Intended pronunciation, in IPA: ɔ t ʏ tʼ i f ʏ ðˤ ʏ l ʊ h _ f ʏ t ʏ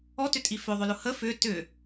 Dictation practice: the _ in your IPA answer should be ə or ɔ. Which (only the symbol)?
ə